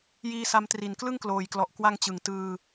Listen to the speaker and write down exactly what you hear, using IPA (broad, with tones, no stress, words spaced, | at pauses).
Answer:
jiː˧sa˧mtri˨˩n klɯ˥˩ŋkloː˨˩jklɔ˨˩ʔ kwa˧ŋt͡ɕɯ˩˦ŋ tɯː˧